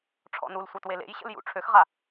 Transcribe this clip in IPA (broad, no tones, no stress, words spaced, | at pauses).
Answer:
ʈ͡ʂʰɔ̰nulsʷa twelḛjɕə̰l jṵ ʈ͡ʂʰøxʁa